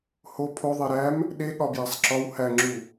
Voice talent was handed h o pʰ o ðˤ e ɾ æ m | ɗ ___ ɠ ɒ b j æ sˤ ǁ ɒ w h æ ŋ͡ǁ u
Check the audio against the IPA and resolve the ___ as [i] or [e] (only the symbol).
e